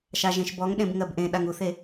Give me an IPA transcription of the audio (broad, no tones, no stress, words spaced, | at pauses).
ʃaʒẽʃbɔŋɗẽb ŋɜbʔẽɗaŋ uθe